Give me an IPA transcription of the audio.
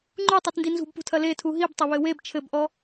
ŋ͡ǃ u tˤ e t n d i n z ṳ b p ṳ tʰ ɐ l e tʰ u ɦ i b tˤ ɐ β ɘ w e b t͡ʃʰ ɘ b ʔ ɔ

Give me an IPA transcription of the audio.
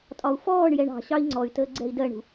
tʼ ɒ u̯ f ɔː ɳ j ɛ ɳ ɑ̤ ɕ ɑ i̯ ŋ͡ǀ ɔ y̯ t əː ɡ͡ǀ ɛ i̯ d ɜ ɳ ṳ

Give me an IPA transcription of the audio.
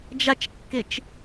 d͡ʒ a t͡ʃ kː e t͡ʃ

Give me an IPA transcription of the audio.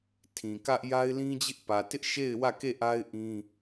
tʰ ĩ˨ k ä˦ ʔ j a˦ ɪ̯ l ĩ˦ d͡ʑ ɪ˦ ʔ p ä˨ t ɪ˦ ʔ ʃ e˦˨ ɪ̯ w ä˦˨ k e˦˨ ʔ a˦ ɪ̯ ʔ ĩ˦

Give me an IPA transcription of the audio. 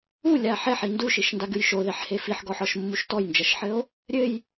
u lʲ a ħ ɛ ħ i n d u ʃ i ʃ n d a ɡ ɨ j ʃ o ð ɛ ħ h e f i ħ ɡ ɔ ħ ɔ ʃ mː u ʃ t ɔ j n d͡ʒ ɐ ʃ ħ ɘ o̯ | ɾʲ ɘ j

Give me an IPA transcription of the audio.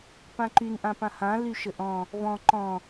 p ã ǃ y n ʔ ã p ã h ã l y ʃ ə ʔ ɔ̃ | v ɔ̃ ǃ ɔ̃

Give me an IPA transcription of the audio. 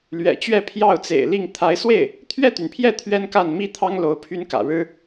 l ɥ ɛ̰˨˩ t͡ɕ ɥ ɛ˥˧ pʰ j ɑ˥˩ ʊ̯ t͡s ḛ˨˩ ɪ̯ l i˥˩ ŋ t̪ʰ a˧˥ ɪ̯ s w e˥˩ ɪ̯ | t̪ʰ ɥ ɛ˥˩ t̪ y˩ n pʰ j ɛ˥˩ t̪ʰ ɥ ɛ˥ n k a˥˩ n m i˥ t̪ʰ ɑ˥ ŋ l o˧˥ ʊ̯ pʰ y˥ n k ä̰˨˩ ɻ ɻ̩˥

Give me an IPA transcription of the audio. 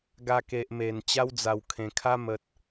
ɡ a˧ k e˨ ʔ m e˨˩ n t͡ɕ a˦ w d͡z a˨˩ w kʰ ẽ˨˩ kʰ a˦ m ə˨ t̚

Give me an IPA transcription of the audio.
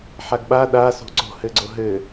ħ a ɡ ɓ a ɗ a s o̤ ǀ o̤ h ɘ ɡ͡ǀ o ɦ ɘ

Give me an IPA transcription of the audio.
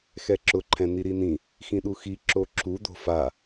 x ɛ ǁ ʊ ǃʰ ɛ̃ n̪ i ɾ i n ĩ | x ĩ ɗ u x i ǁ o ǁ u d̪ o̤ f a

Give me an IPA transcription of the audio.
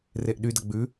r e ʔ ɗ y d ɐ ɡ͡b ʉ

